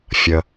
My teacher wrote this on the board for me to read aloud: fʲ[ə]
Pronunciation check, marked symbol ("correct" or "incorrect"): correct